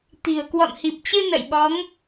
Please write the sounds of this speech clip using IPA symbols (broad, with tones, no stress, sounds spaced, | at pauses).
t̪ i̤˨˩ ə̯ k w ɔ̰˧˨ n h i˨˩ p̚ t͡ɕ ɨ˧ n ə̰˧˨ j ɓ ɔ˨˦ ŋ